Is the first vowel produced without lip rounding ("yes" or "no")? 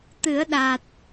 yes